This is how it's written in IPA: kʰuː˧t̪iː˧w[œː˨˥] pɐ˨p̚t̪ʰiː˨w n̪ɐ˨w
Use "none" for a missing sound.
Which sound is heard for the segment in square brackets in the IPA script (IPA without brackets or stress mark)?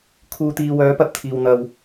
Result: œː˨˥